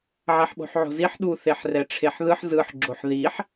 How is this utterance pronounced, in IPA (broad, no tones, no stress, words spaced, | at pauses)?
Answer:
ʕɛħɓo̤ħʕo̤ziħ ɗu θeħrɛʈ͡ʂʰeħðɯħ zɯħ ɡ͡ǁoħðiħ